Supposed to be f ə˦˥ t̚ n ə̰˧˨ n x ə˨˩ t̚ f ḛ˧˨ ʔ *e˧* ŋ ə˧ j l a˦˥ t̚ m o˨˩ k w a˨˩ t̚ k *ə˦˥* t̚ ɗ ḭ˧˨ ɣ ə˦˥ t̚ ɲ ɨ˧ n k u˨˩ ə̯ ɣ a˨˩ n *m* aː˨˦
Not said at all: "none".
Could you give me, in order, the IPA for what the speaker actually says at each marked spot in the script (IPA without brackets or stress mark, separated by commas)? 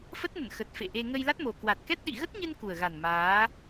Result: e˧, ɛ˦˥, m